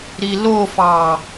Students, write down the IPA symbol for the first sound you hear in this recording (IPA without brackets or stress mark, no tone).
ɾ